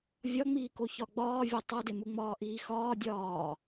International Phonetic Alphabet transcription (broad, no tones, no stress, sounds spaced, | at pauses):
vʲ ɒ ŋ͡m iː k o ç ɒ ɡ͡b ɒː vʲ o tˤ o d e m u ŋ͡m ɒː ʔ iː x ɒː dʲ ɒː